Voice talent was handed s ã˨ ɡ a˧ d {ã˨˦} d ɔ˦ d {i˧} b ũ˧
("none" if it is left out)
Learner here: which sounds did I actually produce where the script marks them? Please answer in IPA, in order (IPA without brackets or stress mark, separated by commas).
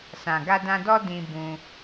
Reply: ã˧, ĩ˧